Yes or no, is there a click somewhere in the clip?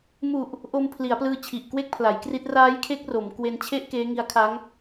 no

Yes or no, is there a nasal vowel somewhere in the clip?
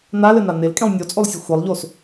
yes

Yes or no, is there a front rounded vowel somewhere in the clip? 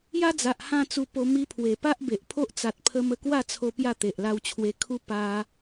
no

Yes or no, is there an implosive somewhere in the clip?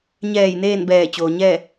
no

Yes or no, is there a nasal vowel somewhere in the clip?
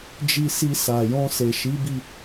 yes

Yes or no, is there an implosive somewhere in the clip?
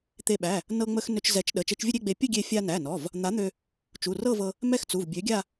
yes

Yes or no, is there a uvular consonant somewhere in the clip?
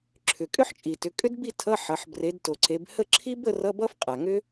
yes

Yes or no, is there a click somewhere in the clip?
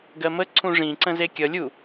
yes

